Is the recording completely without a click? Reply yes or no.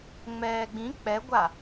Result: yes